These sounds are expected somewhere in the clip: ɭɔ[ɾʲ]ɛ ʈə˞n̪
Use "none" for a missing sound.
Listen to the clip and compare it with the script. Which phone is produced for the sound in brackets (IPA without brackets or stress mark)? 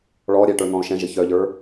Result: ɾʲ